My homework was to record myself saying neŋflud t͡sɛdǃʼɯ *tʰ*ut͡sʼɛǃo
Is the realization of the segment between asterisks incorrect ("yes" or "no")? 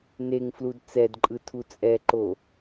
no